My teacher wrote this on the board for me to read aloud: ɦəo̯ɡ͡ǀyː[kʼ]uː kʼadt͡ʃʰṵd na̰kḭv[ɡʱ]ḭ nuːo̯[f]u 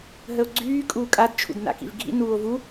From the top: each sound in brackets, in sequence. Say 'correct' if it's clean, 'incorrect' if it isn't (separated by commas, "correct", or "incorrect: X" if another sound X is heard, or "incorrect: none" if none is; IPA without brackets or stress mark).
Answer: correct, correct, incorrect: v